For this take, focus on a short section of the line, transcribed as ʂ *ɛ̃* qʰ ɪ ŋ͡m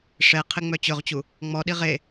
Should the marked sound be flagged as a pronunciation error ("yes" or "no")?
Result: yes